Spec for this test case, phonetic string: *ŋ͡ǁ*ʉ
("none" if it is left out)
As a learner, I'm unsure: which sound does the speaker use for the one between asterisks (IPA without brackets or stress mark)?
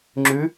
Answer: ŋ͡ǁ